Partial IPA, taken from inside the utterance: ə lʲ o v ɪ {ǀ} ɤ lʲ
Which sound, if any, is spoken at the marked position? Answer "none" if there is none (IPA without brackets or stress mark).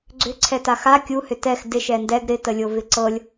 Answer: ǀ